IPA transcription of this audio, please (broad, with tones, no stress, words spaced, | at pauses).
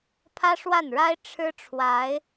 pʰä˥ʂwa˥˩nɻa˥ɪ̯ ʈ͡ʂʰɻ̩˥ʈ͡ʂʰwa˧˥ɪ̯